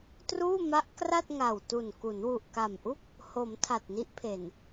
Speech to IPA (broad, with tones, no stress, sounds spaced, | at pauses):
t r uː˥˩ m a˦˥ ʔ k r a˥˩ t̚ ŋ a˨˩ w t u˨˩ n k u˩˦ n w u˨˩ ʔ k a˨˩ m ʔ u˥˩ k̚ | h o˩˦ m tʰ a˨˩ t̚ n i˦˥ ʔ pʰ e˨˩ n